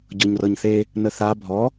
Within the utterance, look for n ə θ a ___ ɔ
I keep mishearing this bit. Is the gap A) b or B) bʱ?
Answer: B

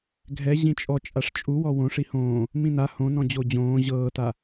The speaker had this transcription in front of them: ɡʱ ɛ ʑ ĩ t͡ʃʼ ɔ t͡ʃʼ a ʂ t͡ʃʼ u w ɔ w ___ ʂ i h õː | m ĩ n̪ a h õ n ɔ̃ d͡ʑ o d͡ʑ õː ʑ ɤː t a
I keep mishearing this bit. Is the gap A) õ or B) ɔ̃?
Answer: A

